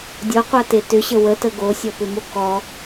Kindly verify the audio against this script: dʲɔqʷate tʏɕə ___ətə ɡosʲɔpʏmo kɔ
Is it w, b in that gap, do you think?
w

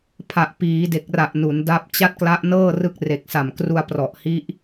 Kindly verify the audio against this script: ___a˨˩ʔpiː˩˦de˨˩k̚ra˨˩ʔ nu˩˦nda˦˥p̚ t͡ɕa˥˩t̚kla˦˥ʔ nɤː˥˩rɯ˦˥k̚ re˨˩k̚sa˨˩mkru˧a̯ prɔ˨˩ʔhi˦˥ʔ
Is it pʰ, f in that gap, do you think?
pʰ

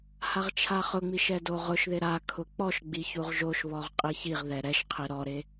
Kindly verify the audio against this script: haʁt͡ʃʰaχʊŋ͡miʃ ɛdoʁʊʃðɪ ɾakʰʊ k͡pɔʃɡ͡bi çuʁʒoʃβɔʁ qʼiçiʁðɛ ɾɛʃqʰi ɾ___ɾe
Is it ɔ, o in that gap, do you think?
ɔ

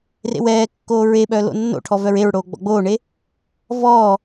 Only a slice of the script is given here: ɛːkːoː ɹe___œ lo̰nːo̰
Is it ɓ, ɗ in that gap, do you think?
ɓ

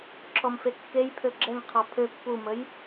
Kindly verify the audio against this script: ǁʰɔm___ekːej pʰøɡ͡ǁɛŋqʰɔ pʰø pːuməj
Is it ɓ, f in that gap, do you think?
f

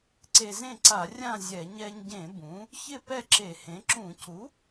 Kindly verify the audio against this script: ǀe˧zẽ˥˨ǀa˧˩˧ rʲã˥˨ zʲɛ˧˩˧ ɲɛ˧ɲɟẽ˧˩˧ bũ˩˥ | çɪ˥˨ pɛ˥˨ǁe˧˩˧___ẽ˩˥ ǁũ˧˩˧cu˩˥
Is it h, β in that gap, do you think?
h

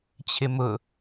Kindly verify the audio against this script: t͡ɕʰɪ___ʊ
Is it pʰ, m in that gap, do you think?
m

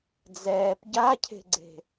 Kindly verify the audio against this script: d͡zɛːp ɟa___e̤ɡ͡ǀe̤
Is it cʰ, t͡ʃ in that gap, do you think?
cʰ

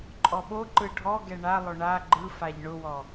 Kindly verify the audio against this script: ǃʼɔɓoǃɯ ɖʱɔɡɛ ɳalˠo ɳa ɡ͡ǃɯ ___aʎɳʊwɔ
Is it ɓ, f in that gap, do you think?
f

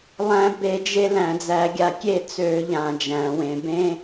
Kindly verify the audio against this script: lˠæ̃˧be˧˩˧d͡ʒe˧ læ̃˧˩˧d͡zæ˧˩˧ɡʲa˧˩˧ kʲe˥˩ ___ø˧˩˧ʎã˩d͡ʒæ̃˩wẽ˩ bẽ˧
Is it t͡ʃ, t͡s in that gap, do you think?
t͡s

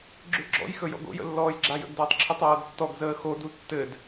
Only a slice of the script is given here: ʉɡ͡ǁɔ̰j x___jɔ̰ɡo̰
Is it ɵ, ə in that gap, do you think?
ɵ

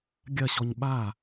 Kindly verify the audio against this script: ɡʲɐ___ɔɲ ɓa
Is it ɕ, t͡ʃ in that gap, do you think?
ɕ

